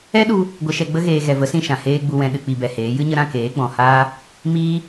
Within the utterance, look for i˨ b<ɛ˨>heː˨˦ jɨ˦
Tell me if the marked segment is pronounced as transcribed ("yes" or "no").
yes